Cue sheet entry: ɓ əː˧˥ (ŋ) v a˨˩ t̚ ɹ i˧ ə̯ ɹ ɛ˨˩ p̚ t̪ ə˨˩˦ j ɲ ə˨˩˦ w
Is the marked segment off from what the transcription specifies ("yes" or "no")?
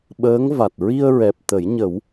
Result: no